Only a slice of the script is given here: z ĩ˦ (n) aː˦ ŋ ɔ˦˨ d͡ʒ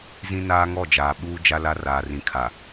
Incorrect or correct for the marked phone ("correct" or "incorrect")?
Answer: correct